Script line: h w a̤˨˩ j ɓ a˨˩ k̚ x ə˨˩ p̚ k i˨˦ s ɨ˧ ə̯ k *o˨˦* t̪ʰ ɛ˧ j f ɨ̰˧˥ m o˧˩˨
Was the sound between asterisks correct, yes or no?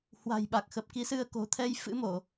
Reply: no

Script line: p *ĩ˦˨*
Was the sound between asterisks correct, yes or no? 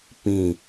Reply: yes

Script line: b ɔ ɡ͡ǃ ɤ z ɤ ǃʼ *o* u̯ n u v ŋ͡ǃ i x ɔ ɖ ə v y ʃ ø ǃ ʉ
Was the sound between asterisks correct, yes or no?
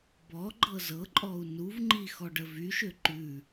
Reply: no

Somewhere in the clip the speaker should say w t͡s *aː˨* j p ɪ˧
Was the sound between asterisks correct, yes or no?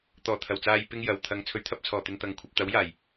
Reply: yes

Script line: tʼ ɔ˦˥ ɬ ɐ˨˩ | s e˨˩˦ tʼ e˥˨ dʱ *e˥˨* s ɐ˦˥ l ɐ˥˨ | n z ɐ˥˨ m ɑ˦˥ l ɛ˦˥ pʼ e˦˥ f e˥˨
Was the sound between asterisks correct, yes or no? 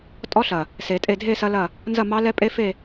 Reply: yes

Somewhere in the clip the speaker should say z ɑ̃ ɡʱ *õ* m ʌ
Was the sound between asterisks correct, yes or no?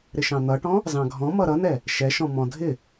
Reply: no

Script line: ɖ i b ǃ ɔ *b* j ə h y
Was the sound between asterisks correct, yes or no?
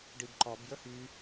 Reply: yes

